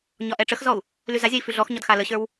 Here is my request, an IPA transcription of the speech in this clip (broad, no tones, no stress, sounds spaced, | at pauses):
ɲ ɒ ʔ ɛ ʈ͡ʂ ə x z ɔ u̯ | l y z a zʲ a i̯ f y ɮ ɔ x ɲ ɒ d x a l ə ɕ ə˞ w